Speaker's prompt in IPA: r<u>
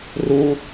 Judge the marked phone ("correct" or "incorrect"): correct